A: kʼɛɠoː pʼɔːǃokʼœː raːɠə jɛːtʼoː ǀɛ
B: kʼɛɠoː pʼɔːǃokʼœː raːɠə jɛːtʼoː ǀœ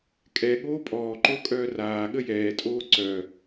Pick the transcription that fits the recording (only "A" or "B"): B